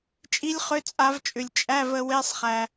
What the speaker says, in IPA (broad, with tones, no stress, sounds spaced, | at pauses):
t͡ʃʼ i˦˥ lʲ χ ʏ˧˥˧ t͡sʼ a˨˦ v t͡ʃʼ ʏ˨ lʲ t͡ʃʼ æ˧˥˧ v ə˨˦ w e˧˥˧ sˤ χ æ˨